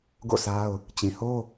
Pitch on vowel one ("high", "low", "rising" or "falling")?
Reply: falling